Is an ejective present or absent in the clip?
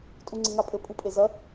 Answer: present